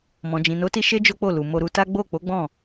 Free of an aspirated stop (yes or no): yes